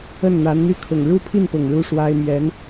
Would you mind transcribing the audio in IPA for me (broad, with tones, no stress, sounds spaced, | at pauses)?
ə˥˩ n n̪ a˧˥ n n̪ y˥˩ kʰ ʊ˨˩ ŋ ɻ u˥˧ pʰ i˥˩ n p ʊ˨˩ ŋ ɻ u˥˩ ʂ w a˥ ɪ̯ m ɥ ɛ˧˥ n